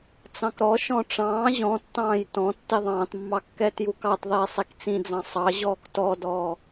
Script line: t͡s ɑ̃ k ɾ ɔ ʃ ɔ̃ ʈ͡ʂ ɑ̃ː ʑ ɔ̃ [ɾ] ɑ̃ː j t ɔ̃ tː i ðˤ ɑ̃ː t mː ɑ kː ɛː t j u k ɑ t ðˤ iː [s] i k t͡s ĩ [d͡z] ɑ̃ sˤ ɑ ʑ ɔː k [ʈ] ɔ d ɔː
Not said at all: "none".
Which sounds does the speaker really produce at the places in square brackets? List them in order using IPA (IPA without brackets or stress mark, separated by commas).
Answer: tː, sˤ, d͡z, t